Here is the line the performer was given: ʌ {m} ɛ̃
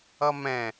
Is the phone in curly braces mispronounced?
no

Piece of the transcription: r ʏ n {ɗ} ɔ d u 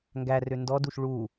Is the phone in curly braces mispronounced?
yes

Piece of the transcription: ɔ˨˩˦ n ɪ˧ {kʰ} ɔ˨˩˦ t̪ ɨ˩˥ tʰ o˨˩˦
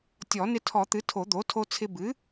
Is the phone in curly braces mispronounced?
yes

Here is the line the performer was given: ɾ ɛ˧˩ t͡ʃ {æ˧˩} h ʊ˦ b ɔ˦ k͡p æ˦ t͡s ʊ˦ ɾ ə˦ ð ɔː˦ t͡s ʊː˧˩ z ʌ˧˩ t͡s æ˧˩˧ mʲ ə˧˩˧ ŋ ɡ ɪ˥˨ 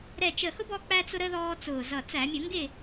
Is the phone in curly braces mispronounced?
yes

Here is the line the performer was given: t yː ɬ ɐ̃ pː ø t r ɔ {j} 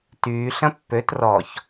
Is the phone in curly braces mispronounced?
yes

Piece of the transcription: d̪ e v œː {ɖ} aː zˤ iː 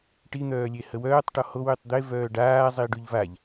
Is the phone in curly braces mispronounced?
no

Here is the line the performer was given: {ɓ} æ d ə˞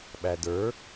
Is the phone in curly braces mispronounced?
no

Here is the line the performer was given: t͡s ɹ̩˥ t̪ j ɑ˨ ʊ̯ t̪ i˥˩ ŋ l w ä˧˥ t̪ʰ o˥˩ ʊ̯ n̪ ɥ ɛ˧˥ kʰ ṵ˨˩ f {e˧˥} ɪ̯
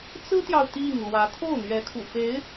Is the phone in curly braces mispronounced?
no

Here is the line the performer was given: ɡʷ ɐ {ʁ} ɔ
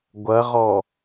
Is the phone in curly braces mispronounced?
no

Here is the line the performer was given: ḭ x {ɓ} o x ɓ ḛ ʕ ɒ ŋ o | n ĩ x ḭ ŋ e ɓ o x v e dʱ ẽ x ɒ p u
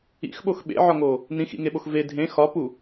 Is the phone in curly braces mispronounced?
no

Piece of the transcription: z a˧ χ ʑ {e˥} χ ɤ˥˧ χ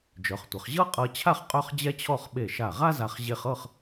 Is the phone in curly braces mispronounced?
yes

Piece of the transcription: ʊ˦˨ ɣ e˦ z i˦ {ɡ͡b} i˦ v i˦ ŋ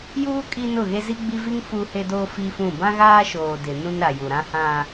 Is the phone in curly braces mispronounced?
no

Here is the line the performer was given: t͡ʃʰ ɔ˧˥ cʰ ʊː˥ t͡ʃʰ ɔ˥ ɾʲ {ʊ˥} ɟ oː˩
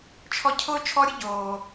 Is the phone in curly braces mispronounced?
no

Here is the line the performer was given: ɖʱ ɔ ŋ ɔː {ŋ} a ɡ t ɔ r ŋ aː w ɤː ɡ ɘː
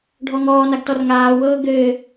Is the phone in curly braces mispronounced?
yes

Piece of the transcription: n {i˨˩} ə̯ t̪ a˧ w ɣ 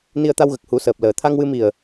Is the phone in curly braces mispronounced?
yes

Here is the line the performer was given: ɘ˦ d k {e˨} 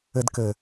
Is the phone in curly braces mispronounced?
yes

